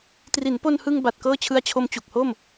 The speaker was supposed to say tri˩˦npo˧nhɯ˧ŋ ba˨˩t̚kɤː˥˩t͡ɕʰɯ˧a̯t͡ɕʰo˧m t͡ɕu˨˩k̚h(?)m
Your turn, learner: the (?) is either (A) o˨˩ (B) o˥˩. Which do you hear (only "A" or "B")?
B